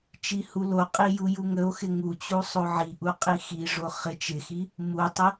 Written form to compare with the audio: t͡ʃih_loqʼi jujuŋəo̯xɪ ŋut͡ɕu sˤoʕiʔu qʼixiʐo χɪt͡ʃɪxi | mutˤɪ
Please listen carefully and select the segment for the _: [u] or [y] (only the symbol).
u